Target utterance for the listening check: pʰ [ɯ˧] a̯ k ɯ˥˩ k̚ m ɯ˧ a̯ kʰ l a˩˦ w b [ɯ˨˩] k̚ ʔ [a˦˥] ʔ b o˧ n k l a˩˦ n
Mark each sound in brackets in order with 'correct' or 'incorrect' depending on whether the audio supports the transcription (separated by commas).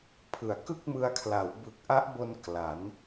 incorrect, correct, correct